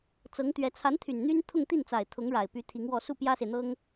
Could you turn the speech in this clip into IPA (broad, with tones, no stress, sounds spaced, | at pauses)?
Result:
t͡s ɤ˧˥ ŋ t̪ ɥ ɛ˧˥ t͡sʰ a˧˥ n t̪ʰ y˨˩ n n̪ y˥ n t̪ʰ ʊ˥˧ ŋ t̪ i˥˩ n t͡s a˨˩ ɪ̯ t̪ʰ ʊ˧˥ ŋ ɻ a˨˩ ɪ̯ p y˧˥ t̪ʰ i˧˥ ŋ w ɔ˥˧ s u˥˩ p j ä˥ s e˨ ɪ̯ n̪ ɤ˥ ŋ